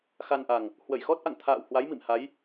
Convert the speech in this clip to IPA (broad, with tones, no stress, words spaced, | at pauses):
xa˧nʔa˨˩ŋ | hwə˧˩jxɔ˦˥t̚ʔa̰˧˨ŋ t̪ʰa̰ː˧˨whwa˨˦j mḭ˧˨mha˨˦j